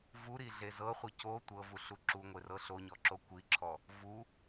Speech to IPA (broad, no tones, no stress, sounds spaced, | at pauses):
v u ɾ i ɮ e z ɤ χʷ ɯ c o tʷ ɤ v u ɬ u ǁ u ŋʷ e r ɤ ɬ o ɲ ɔ ǁ o kʷ i ǁʰ ɔ | v u